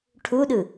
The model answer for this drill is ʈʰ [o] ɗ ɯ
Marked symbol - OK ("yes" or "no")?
no